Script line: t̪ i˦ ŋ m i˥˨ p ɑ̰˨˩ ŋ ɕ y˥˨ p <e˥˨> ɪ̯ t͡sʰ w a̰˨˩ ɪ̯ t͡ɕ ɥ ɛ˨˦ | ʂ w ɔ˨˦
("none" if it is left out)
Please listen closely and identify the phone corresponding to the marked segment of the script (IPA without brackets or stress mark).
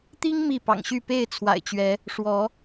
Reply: e˥˨